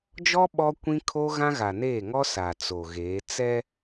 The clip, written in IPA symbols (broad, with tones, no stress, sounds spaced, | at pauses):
d͡ʒ ɔ˦ ɓ ɔ˦ kʷ ĩ˦ kʰ o˦ ɣ ã˦ ɣ a˨ n eː˦˨ ŋ ɔ˦ s a˨ t͡s o˨ ɣ eː˨˦ t͡s ɛ˦